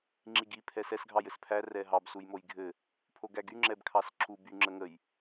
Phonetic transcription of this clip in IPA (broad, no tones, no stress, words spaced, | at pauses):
ŋ͡ǁiɡi pʰɛsɛs ɡʱɑjɘspʰæ rɛɦɑb sujmojɡʱɘ | pʰoɡæɡy ŋ͡ǁɛbkʰɑsǁu by ŋ͡ǁəŋəj